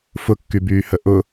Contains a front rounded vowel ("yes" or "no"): yes